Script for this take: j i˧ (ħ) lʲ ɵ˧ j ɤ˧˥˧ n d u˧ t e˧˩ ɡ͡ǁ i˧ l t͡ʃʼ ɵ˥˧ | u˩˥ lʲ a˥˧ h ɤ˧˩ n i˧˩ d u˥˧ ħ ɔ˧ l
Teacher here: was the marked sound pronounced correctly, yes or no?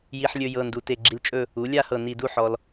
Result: yes